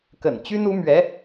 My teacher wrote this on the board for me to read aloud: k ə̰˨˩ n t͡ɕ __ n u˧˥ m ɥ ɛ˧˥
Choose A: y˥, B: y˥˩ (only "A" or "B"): A